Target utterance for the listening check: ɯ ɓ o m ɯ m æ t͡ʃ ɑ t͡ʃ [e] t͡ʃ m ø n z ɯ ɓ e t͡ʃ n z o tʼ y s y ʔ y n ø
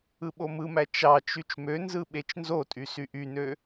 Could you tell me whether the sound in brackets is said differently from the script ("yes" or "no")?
yes